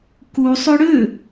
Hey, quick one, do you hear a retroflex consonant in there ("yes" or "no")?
yes